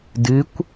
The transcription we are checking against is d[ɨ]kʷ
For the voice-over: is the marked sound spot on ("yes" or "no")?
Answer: yes